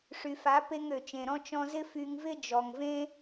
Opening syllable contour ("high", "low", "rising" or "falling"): low